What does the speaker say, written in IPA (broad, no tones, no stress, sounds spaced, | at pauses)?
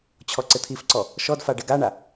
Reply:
t͡ɕʰ ɔ ǀ ɪ t̪ʰ i f ǀ ɔ | ʃ ɔ d f a ɖ ɪ ɡ a ɳ a